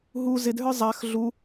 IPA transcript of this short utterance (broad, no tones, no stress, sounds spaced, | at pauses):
ɦ u z ɪ d ɦ ə˞ zˤ a x ɮ u